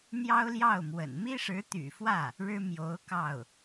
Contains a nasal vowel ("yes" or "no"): no